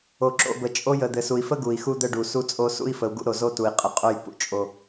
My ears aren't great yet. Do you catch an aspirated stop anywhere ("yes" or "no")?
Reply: no